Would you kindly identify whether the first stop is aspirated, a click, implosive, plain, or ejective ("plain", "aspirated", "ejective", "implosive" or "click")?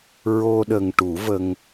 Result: implosive